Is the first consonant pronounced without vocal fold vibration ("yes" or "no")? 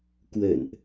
yes